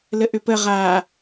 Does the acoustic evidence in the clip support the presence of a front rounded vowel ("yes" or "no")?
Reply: yes